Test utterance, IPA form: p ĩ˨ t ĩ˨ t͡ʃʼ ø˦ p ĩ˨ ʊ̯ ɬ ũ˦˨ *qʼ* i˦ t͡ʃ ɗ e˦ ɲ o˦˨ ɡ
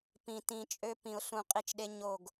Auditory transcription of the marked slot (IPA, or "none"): qʼ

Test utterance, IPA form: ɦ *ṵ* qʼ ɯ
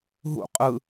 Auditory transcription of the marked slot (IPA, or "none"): ṵ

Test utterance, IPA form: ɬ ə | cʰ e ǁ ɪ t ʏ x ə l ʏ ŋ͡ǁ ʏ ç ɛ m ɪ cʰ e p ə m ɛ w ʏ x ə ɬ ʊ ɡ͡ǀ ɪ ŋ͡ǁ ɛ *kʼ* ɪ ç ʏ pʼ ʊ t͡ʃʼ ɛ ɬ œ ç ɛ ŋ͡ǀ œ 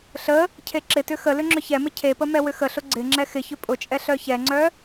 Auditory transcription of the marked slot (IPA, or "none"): x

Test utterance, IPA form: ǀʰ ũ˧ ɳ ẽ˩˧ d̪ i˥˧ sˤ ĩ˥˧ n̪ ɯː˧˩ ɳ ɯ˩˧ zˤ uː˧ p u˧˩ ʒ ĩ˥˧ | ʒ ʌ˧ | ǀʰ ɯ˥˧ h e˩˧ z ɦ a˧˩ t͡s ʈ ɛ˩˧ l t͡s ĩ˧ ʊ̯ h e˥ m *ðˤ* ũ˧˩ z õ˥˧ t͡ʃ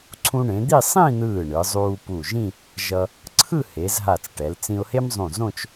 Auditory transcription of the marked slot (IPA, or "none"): zˤ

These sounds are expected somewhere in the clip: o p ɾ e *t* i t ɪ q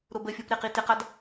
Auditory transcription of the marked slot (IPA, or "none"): q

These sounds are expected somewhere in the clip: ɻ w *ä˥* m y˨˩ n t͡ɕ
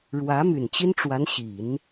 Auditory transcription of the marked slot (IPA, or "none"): ä˧˥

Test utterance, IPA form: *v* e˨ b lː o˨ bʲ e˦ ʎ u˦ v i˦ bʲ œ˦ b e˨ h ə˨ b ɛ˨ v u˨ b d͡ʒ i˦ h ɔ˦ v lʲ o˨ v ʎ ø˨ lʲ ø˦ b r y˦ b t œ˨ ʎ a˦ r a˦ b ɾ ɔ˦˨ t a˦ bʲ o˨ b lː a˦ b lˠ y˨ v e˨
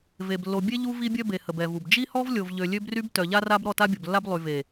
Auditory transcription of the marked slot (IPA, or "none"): v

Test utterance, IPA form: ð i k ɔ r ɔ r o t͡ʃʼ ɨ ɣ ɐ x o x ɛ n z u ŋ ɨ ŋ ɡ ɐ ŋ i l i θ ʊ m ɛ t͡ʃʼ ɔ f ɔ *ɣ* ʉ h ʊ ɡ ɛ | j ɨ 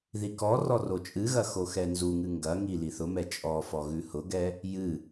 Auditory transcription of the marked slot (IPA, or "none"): ɣ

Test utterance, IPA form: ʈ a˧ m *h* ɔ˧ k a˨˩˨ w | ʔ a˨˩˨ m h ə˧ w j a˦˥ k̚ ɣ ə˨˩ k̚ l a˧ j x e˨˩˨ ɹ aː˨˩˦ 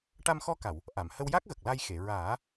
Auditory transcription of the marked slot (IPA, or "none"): x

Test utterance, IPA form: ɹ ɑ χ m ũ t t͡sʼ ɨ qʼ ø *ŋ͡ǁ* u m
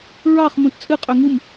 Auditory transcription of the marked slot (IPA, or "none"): ŋ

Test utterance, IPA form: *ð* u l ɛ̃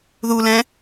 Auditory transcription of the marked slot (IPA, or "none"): ð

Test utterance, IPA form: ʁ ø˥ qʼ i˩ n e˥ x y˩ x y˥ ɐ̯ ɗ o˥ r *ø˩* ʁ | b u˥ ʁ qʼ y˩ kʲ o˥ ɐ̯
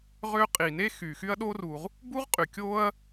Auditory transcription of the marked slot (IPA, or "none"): u˩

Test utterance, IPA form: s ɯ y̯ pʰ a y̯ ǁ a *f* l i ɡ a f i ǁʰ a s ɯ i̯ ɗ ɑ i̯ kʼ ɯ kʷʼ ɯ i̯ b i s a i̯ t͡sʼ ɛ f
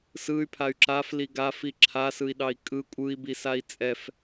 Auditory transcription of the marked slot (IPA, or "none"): f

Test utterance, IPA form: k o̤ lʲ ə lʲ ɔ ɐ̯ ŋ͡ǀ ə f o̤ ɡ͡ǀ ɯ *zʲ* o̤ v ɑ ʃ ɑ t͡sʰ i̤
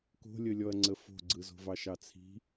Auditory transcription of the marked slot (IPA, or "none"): z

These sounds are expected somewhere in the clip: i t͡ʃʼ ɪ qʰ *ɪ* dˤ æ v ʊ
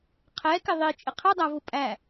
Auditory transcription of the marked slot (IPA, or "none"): ɪ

